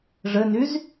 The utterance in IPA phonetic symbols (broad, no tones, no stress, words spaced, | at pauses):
ʐɘnyz